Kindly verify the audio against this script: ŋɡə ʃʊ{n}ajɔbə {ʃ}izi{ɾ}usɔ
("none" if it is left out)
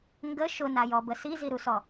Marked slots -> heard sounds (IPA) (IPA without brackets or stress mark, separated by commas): n, s, ɾ